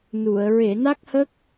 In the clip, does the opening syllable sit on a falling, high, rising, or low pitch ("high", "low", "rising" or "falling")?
low